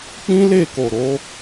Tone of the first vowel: high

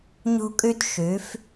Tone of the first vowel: high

